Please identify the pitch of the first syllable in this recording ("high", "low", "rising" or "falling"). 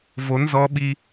rising